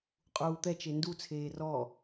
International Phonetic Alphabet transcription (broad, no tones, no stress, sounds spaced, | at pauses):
qʼ uː t̪ ɛ t͡ʃ e n d u t͡sʰ eː r ɔ